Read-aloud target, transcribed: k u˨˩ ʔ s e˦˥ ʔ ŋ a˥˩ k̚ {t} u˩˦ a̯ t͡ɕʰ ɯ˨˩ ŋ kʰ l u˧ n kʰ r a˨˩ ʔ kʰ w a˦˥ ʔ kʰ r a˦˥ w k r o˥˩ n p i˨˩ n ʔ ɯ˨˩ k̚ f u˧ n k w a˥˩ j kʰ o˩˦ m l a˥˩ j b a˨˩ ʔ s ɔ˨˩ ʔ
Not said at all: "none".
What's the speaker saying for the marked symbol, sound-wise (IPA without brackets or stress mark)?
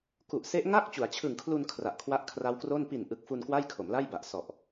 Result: t͡ɕ